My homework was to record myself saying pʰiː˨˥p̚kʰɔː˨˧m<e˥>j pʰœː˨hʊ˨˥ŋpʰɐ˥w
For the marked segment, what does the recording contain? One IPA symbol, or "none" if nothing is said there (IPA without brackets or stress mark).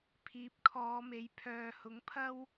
e˨˥